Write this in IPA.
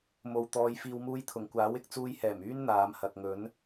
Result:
m o˨ w t̪ ɔː˨˧ j f iː˨ w m uː˧ j t̪ʰ ʊ˨˩ ŋ kʷ aː˨˥ w ɪ˨ k̚ t͡s uː˧ j h ɛː˨˩ m yː˥ n n̪ aː˨˧ m h ɐ˨ k̚ ŋ ɵ˨˥ n

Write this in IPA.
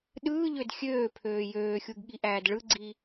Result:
ɗ ɯː ʎ ø d xʲ øː pʰ øː j øː xʲ u ɡ ɠ i ʔ æː d ɭ ɯ ɡ͡ǀ i

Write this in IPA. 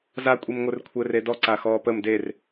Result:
z a kʷʼ i m ŋʷ ɘ r kʷʰ ɘ r e d ɔ ǀ a x ɔː p ə m d e r

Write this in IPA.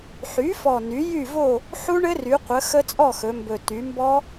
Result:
ħ y˩˥ f ɔ˨˩ n y˩˥ j y˥˨ v o˥˨ | ħ u˦˥ ɳ ɘ˦˥ r y˩˧ qʷ ə˩˧ x ə˦˥ t͡sʼ ɔ˥˨ x ɵ˩˧ m b ɵ˨˩ t y˩˧ m b ɔ˦˥

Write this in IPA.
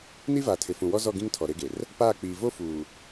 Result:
n i˦ v aː˨ tʰ ɪ˨ f ũ˨ w ɔ˦ z ɔ˦˨ ɡ ĩ˦ ŋ tʰ ɔ˨ ɾ e˦ ɡ e˨ r | p aː˦˨ k͡p iː˨ v o˦ f uː˨

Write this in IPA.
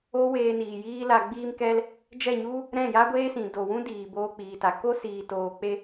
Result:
o˦ w eː˧ n iː˨ j iː˦ l a˧ ɡ͡b iː˧ m k ɛ˧ l | d͡ʒ ɛ˦˨ ɲ u˦ | ɾ ɛ̃˦˨ j a˦ ɡʷ eː˦ s ĩ˨ d o˨ w ũ˦ d iː˨ b oː˧ k͡p iː˨ t a˨ k o˦ s iː˨ t oː˨ k͡p e˧

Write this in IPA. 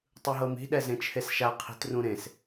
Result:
tˤ ɯ ɦ ɤ m i̤ ɗ ɛ z ẽ t͡ʃʰ e s ʃ a qʰ i̤ t r ũ ɾ ẽ s

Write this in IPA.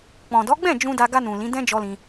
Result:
k͡p ɔ̃˨ d ɔ˨˦ ɡ͡b ɛ̃˦˨ d͡ʒ ũ˧ d a˧ ɡ a˧ n ũ˨ l ĩ˨˦ d ɛ̃˦ d͡ʒ ɔ˧ l ĩ˧

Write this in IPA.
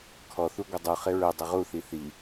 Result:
kʰ ɔ θ u ɡʷ ə dˤ u χ ɪ ɹ ə dˤ ə ʁ u θ i θ i

